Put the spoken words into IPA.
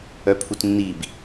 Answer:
œ pʰ u t nː i b

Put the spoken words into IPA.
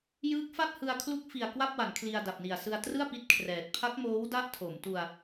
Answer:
j ɯː˦˥ k̚ f a˥˩ t̚ h ɯ˧ a̯ kʰ l u˦˥ k̚ f i˨˩ a̯ k w a˥˩ p̚ w a˩˦ n kʰ l i˧ a̯ d a˨˩ p̚ n i˨˩ a̯ s ɯ˧ a̯ t r ɯ˥˩ a̯ p i˦˥ t̚ kʰ r ɛː˨˩ t̚ pʰ a˦˥ k̚ m oː˦˥ w d a˥˩ ʔ tʰ o˩˦ m t u˧ a̯

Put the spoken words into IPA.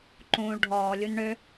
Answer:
ǃ ũː ɭ ɖʱ ɔː lʲ u n ɳ ø

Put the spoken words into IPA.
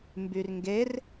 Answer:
m b y r ŋ ɡ e r

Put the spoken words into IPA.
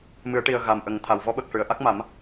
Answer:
m ɨ˨˩˦ ə̯ ʈ i˨˩ ə̯ ɣ a˨˩ m ʔ ə˨˩˦ ŋ t̪ʰ a˨˩ w v ɔ˧˥ ɓ ə˨˩ k̚ ʂ ɨ˨˩˨ ə̯ ʔ a˦˥ k̚ m a˨˩˦ m

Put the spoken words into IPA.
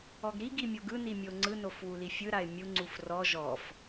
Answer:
ɔ ɡ ɾ i ɡ i mʲ o ɡ ɯ n i mʲ o ŋ͡ǀ ɯ n o f w u l i fʲ ɯ ɾ a ɪ̯ mʲ u ŋ͡ǀ u f r ɔ ʒ ɔ f

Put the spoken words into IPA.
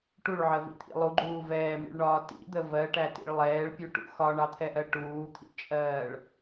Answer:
ʈ u ɭ ʕ ɜ v ḭ t̪ʰ ḭ lˠ u ɡ͡ǃ uː v ɛː m ḭ ɭ ɳ ɒː t ḭ d̪ ə v ɜ ʈ æ t ḭ ɭ lˠ ɛː ɭ pʲ u ʈ ṵ x ɒ ɳ ɑ t̪ʰ ɛ ʔ ɜ ʈ uː t̪ʰ ḭ t͡ʃʼ ɜː ɭ

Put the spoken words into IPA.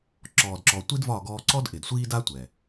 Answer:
ǁ ɔː˨ d ǁ ɔ˨ tʷ i˦ d v ɒ˦˨ ɡ ɔː˧ ǀ ɔ˦ d ʔ ɪ˨ d sʷ iː˦ d a˦ tʷ ɛ˨

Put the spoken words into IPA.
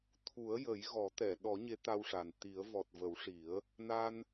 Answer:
t̪ʰ u˨˩˦ ə̯ j ə˨˩˦ j ɣ ɔ˨˩˦ t̪ ɛ˨˩˨ ɗ ɔ˨˩˦ ɲ e˧˥ t̪ a˧ w ʂ a˨˩ n t̪ i˨˩˦ ə̯ v ɔ˨˩ t̚ v ə˨˩˦ w ʂ i˨˩˦ ə̯ | n a˧ n

